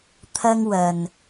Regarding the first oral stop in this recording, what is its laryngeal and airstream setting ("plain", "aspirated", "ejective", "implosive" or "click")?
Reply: aspirated